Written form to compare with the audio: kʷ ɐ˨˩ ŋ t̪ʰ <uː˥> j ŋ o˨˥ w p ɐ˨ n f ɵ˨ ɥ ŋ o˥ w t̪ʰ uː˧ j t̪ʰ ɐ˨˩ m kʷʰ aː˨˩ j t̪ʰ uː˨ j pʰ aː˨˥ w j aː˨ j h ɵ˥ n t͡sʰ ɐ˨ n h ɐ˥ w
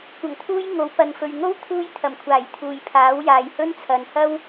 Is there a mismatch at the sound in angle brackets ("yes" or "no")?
no